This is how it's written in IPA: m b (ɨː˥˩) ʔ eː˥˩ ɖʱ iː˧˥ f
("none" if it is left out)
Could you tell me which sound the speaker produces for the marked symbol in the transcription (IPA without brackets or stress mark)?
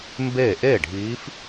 eː˥˩